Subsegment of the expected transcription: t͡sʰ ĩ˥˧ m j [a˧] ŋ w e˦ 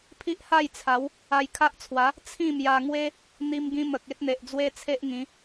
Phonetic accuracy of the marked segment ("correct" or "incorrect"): correct